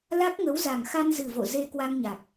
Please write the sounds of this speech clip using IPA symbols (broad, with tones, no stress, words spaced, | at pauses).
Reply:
la˦˥k̚ŋə˨˦wza˨˩ŋ xa˧nzɨ˨˩vo̰˧˨ ze˧ kwa˧ŋɲa˨˩k̚